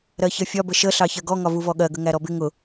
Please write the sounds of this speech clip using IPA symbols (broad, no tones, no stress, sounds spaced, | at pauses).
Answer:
ɾ ɜ ç ʌ fʲ ɒ b ə ʃ ə ɬ ɑ ç ɜ ɡ ɔ ŋ ɒ v u v ɔ ɠ ɜ ɡ ə ŋ æ ɾ ɔ b ɪ ŋ ʊ